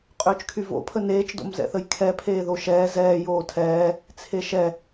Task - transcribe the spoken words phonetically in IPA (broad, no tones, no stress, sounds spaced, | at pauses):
qʼ øː t͡ʃ kʰ y v o̰ pʰ ə n eː t͡ʃ d o̰ m z ɛ̰ θ ə j kʰ ɛ pʰ eː ð o ʃ ɛː z ɛː j oː tʰ ɛː | t͡sʰ e ʃ ɛ